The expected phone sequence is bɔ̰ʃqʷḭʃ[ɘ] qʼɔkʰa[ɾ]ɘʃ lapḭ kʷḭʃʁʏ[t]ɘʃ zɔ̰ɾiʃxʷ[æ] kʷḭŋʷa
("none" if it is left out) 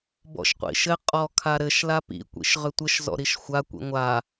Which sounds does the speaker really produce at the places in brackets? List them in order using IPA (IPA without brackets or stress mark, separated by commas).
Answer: ɘ, ɾ, tʷ, a